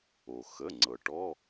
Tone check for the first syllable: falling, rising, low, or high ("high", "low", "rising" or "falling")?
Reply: low